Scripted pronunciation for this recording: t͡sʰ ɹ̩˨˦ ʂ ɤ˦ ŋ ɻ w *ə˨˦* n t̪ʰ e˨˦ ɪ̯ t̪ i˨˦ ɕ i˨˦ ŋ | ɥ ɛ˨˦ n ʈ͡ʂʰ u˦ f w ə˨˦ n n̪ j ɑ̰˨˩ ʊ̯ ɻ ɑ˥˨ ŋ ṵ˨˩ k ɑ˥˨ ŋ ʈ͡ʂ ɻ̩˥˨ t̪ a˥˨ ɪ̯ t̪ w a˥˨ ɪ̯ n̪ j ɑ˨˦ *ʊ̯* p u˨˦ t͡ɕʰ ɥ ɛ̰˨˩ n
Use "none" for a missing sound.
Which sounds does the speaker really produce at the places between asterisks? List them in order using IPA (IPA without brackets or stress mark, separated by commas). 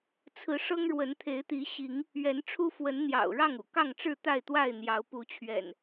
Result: ə˨˦, ʊ̯